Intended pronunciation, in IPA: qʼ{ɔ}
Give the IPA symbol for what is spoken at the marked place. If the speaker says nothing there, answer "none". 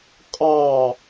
ɑ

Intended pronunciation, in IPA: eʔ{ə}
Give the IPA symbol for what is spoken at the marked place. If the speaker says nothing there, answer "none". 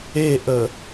ə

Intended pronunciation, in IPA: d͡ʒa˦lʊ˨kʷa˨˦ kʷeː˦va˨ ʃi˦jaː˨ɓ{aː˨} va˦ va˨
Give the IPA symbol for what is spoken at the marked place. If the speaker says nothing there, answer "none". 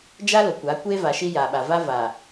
a˨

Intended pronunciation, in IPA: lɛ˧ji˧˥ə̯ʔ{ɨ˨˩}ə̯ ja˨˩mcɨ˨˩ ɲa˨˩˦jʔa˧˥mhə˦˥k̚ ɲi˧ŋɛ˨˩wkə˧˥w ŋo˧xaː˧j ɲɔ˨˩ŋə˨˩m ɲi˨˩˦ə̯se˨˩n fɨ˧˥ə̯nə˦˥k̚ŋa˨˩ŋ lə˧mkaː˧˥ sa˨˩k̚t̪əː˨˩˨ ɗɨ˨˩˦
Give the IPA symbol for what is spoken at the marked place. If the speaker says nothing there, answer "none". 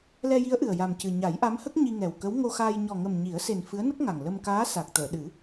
ɨ˨˩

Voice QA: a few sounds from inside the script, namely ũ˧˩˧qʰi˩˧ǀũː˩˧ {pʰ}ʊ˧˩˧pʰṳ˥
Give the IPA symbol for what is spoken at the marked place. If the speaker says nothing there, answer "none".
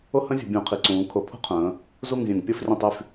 kʰ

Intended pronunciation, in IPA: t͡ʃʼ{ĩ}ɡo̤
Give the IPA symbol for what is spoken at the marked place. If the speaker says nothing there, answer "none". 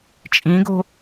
ĩ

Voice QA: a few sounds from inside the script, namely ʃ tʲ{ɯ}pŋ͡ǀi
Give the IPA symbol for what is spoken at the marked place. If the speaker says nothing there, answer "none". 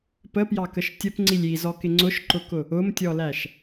ə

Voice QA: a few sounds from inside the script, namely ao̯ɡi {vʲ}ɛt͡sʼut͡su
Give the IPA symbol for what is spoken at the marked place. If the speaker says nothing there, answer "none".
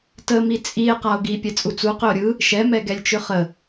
pʲ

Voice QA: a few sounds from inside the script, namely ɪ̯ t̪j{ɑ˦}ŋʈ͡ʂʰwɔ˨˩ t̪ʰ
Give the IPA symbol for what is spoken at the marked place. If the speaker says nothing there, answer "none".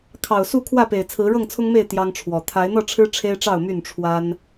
ɑ˦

